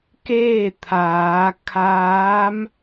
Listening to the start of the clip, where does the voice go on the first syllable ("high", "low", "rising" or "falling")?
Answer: falling